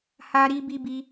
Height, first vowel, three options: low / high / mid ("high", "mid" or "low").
low